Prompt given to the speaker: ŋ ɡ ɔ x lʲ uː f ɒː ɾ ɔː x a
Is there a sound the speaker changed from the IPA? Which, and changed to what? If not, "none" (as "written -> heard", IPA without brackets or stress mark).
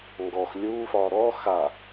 none